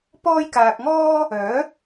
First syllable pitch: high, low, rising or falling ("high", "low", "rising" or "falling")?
high